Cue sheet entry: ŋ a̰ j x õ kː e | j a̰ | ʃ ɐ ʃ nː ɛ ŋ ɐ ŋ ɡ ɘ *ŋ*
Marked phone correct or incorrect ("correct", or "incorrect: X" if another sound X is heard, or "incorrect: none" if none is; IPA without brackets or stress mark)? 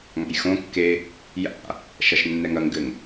correct